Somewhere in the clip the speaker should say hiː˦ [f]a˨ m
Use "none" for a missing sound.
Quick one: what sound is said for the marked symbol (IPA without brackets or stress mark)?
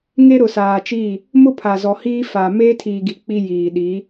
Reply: f